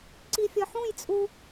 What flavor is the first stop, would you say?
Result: click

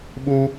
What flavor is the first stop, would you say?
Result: implosive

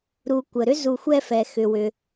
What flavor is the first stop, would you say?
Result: plain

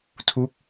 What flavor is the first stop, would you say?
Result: aspirated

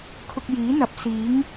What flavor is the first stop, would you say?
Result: aspirated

